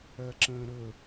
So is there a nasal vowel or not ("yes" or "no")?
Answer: yes